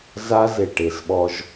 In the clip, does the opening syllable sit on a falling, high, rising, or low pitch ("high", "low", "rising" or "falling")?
high